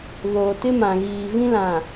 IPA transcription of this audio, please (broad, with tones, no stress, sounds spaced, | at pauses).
β oː˨ t ɪ˦ m ã˨ ɣ iː˨ v ĩ˦ l ã˨